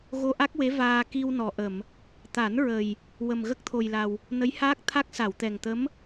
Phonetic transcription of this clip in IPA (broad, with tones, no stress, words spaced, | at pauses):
ɣo˧ʔa˦˥k̚we˧˥ vaː˧ ki˧wnɔ˨˩ʔə˨˩˨m | t̪a˨˩˦nɹə˨˩j | wə˨˩mɣə˦˥k̚t̪ʰo˨˩jla˨˩w | nə˧˥jhaː˦˥k̚t̪ʰa˦˥k̚ sa˨˩˨wt̪ɛ˨˩ŋt̪ə˧˥m